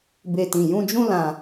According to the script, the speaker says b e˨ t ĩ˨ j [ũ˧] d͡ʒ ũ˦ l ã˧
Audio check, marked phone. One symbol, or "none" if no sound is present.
ũ˧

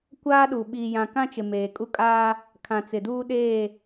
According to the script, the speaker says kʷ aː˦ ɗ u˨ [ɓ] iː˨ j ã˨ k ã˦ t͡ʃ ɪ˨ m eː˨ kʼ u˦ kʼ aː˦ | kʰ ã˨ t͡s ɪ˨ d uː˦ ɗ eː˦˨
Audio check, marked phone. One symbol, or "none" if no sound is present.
ɓ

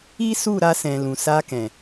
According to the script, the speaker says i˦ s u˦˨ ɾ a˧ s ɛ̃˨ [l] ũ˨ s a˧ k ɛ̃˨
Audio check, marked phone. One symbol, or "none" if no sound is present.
l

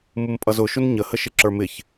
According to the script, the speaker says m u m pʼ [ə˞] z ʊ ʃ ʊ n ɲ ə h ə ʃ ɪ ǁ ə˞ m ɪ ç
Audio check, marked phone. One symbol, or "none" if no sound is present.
ʌ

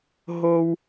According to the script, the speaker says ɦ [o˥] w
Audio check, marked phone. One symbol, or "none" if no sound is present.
o˥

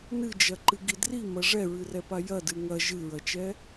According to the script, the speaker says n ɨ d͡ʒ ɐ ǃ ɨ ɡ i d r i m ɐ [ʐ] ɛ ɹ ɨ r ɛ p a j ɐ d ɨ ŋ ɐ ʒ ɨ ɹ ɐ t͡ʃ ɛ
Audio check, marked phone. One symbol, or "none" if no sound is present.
ʐ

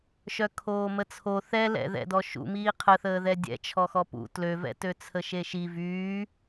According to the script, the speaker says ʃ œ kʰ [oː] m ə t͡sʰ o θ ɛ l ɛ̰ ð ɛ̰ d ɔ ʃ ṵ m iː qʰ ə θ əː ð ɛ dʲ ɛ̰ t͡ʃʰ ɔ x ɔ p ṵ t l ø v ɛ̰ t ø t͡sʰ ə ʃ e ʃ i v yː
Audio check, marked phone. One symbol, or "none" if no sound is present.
oː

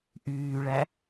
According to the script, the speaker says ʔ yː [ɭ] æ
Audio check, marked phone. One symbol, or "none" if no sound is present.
ɭ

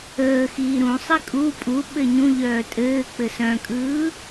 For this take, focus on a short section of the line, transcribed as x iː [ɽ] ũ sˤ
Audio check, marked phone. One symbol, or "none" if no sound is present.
ɾ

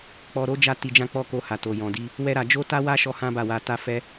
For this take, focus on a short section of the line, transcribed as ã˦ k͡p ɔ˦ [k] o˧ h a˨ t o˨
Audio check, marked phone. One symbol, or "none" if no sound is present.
k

